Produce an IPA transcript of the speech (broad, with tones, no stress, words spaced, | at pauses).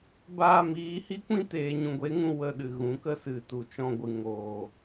baː˧miː˨˦hi˦kʷĩ˦ teː˨ɲũ˨ɡʷe˨˦ŋũ˧ wə˧ɗɨ˨ɣũ˨˦kə˦ sɨ˨ tu˨t͡ʃɔ̃˧ɡʷɨ˨ ŋoː˨